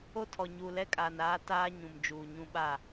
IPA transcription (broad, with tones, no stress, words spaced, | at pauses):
o˦tʰɔ˨ ɲuː˨lɛ˦kʼaː˨n aː˦ taː˦ ɲũ˨md͡ʒuː˨ɲũ˦ɓa˦˨